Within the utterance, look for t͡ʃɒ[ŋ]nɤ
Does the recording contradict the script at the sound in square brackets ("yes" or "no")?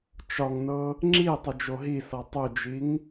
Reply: no